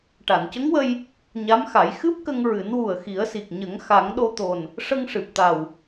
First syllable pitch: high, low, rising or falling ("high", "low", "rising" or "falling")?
low